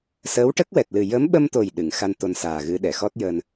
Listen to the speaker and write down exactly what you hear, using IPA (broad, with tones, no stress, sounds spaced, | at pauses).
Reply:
s əː˧˥ w ʈ ə˦˥ k̚ w ɛ˨˩ t̚ l ɨ˨˩ j ə˧˥ m ɓ ə˧ m t̪ o˨˩ j ɗ ɨ˨˩˨ ŋ x a˧ n t̪ o˧ n s aː˨˩ ɣ ɨ˧˥ ɗ ɛ˨˩˨ x ɔ˦˥ t̚ j əː˧ n